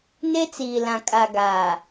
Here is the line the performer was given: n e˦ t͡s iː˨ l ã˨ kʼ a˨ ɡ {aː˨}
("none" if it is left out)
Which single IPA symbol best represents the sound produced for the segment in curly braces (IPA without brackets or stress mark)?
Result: aː˨